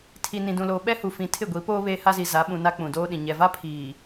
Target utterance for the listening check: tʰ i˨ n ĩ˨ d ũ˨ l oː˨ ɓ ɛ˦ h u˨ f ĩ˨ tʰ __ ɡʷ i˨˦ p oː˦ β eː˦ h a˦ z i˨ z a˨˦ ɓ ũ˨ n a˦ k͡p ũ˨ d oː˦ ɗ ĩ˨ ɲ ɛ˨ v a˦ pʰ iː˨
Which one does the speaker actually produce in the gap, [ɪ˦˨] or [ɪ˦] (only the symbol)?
ɪ˦˨